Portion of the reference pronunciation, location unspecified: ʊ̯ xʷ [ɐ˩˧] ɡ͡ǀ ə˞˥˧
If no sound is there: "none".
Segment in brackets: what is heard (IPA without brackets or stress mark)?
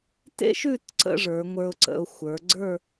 ə˞˩˧